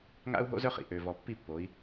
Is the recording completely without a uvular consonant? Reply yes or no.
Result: no